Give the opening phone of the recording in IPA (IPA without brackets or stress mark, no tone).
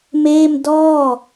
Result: m